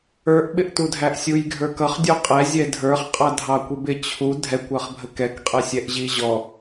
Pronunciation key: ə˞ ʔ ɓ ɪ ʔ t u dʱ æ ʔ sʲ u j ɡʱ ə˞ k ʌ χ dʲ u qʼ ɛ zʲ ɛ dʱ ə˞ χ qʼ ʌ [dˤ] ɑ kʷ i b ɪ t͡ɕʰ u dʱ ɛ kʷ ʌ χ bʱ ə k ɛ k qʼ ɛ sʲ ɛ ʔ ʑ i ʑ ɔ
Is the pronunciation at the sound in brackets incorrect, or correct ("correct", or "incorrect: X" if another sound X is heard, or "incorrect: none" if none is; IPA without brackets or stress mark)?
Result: incorrect: dʱ